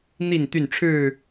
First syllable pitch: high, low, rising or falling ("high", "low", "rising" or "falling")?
falling